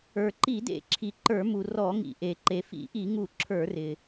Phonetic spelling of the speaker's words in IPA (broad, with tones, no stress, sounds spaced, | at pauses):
ə˞˩ ǃ i˧˩˧ d ḛ˧˩˧ ǁʰ i˩ ǃ ə˞˧˩˧ m u˩ r ɔ˧˩˧ ŋ ḭ˩ ʔ e˩ ǃ e˩ f ḭ˧˩˧ ʔ i˧˩˧ ŋ u˧˩˧ ǁʰ ə˞˧˩˧ r ɪ˩